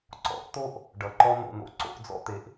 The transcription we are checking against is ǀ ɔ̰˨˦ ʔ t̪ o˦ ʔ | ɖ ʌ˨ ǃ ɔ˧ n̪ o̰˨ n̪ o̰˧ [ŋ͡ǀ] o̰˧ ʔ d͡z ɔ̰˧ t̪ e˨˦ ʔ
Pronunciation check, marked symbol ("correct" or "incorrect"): incorrect